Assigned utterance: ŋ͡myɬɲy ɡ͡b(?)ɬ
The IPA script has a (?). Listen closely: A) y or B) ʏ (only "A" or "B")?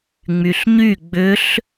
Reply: B